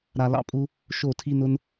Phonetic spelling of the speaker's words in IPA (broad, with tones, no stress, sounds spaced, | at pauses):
ɾ a˧ l ɑ̰˦ pʼ u˦ | ʃ o˦˨ tʰ i˦ n ʊ˦ n